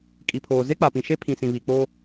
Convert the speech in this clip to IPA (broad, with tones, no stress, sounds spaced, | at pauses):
kʼ i˨ pʰ oː˨ z e˦ k͡p a˨ p ĩ˨ ʃ e˦ pʰ ĩ˨ s ĩ˨ β i˨ k͡p o˦